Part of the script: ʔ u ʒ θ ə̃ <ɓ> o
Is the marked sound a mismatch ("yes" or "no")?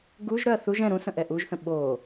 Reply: no